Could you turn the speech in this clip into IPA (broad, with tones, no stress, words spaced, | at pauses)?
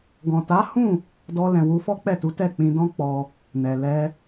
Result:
ɡɔ̃˨ta˨˦hũ˦˨ | dɔ˧lɛ̃˨wu˧ fɔ˦k͡pɛ˦˨tu˨˦ tɛ˦˨k͡pĩ˧dɔ̃˦k͡pɔ˧ | nɛ˨lɛ˧